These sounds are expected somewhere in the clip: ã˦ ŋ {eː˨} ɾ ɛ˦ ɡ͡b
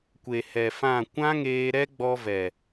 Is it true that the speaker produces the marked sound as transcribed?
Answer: no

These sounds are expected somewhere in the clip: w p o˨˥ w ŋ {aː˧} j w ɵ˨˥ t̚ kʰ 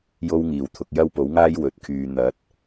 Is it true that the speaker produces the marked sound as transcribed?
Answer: no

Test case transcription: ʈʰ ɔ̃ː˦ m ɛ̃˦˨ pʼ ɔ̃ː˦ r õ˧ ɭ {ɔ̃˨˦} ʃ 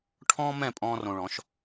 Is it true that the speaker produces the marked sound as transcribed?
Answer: yes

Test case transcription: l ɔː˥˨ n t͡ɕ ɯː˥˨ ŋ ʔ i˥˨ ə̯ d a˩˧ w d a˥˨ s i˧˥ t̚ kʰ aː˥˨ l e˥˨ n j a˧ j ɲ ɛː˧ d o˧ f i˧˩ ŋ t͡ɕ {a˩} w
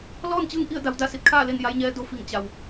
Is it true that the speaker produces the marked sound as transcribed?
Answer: yes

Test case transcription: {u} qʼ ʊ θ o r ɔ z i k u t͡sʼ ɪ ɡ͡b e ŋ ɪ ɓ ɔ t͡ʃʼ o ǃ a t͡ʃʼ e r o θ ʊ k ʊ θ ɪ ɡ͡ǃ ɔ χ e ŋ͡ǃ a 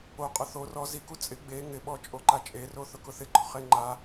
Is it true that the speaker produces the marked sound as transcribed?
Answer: no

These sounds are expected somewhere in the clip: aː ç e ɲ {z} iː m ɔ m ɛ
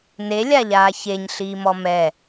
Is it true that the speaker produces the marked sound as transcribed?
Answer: no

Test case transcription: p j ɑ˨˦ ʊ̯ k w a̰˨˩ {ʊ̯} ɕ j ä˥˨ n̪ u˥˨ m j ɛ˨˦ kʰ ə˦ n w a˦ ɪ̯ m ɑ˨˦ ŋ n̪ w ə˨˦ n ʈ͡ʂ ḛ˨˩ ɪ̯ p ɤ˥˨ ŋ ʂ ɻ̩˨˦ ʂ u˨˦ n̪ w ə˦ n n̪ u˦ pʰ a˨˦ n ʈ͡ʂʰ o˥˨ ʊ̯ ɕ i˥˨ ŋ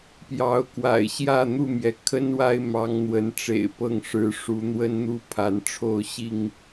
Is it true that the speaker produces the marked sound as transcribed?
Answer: no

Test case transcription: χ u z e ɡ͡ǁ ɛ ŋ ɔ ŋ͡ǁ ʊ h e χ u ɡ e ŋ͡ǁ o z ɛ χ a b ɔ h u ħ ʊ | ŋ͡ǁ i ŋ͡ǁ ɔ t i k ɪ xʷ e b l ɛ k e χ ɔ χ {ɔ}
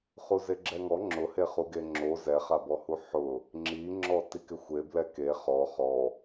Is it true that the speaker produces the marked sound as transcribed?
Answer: yes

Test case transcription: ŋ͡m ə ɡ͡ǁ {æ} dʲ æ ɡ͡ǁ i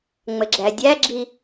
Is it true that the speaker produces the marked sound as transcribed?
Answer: yes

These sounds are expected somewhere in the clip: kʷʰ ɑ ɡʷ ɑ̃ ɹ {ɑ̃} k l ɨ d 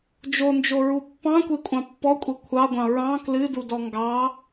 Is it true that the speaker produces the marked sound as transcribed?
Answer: yes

